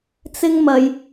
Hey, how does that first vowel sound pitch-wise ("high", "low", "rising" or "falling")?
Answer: high